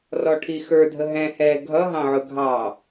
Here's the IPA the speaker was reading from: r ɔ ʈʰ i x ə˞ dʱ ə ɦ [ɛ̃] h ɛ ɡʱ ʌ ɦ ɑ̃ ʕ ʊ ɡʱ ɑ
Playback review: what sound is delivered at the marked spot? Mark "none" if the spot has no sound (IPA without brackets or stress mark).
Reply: ɛ̃